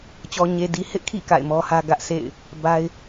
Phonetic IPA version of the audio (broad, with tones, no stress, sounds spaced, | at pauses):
t͡ɕ ɔ˨ ɲ e˨ d i˨ h ɪ˦ ʔ kʰ ḭ˦˨ k a̰˦˨ ɪ̯ m ɔ˦ h ä˦ ɡ ä˦ ʔ sʰ ḛ˦˨ ɪ̯ | b a˦ ɪ̯